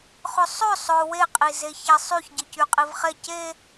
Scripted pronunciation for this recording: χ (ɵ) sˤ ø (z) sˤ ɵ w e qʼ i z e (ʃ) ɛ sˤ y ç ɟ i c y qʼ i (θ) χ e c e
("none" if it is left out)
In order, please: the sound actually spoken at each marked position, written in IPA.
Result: ɵ, none, ç, v

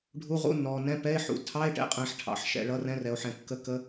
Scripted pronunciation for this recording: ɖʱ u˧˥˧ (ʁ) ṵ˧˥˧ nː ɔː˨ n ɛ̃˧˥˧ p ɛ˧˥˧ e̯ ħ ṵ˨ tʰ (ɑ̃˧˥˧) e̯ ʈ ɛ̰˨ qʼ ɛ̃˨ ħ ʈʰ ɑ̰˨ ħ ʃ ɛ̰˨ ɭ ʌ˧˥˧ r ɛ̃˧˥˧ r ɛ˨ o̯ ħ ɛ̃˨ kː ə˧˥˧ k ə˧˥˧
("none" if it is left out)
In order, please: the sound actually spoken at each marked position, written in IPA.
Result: ʁ, ɑ˧˥˧

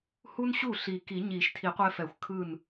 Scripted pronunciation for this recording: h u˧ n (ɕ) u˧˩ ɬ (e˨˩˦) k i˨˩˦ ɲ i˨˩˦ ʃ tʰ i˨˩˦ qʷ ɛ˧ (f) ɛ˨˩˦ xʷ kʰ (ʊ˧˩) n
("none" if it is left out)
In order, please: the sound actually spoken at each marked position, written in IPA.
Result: ɕ, i˨˩˦, f, ɯ˧˩

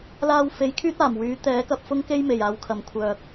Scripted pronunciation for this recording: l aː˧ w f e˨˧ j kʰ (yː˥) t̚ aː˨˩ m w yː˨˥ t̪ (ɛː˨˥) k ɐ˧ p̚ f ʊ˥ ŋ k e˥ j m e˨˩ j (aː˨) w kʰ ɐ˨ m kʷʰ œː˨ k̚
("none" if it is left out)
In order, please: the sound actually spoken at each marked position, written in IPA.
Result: yː˥, ɛː˨˥, aː˨

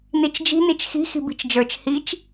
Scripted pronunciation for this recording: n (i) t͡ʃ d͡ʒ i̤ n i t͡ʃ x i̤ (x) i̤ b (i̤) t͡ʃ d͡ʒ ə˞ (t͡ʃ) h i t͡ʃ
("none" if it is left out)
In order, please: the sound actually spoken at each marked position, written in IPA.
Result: i, x, i̤, t͡ʃ

